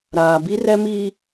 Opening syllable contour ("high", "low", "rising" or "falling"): low